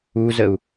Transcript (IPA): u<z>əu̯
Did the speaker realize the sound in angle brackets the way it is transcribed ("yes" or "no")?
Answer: yes